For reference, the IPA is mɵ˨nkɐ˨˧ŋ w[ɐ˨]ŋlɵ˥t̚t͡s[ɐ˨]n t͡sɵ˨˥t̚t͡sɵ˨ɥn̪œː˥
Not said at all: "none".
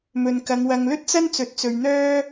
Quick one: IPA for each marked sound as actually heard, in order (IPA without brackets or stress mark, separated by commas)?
ɐ˨, ɐ˥